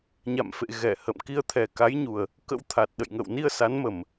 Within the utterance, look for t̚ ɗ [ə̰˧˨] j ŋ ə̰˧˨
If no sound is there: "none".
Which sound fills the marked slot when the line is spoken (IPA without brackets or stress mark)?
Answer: ə̰˧˨